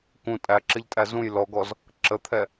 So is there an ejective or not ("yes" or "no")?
yes